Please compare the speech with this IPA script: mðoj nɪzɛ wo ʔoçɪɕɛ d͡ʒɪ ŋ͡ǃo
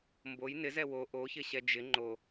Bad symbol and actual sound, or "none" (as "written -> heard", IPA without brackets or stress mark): ð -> b